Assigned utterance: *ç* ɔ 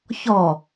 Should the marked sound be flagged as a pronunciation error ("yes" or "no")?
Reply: no